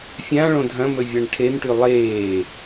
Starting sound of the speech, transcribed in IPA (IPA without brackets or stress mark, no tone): fʲ